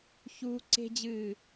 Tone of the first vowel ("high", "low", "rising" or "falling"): high